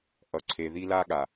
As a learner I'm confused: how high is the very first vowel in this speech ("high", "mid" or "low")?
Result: mid